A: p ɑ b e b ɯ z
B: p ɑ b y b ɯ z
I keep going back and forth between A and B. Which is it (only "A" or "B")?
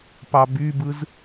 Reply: B